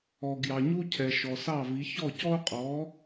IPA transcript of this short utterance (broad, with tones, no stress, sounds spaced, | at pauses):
ɔ˨ ɡ j ɑ˨ ɲ u˥ cʰ ɛ˨ ʃ ɔ˨ s ɑ˥˨ v i˨˥ ç ɔ˥˨ c ɔ˥ o̯ qʼ ɔ˨˥